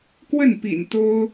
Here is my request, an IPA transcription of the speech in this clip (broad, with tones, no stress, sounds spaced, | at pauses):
k w ə˥˩ n p ḭ˨˩ n t̪ o˥ ʊ̯